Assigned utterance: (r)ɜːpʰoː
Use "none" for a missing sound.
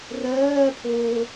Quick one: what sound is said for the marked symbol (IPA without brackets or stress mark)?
r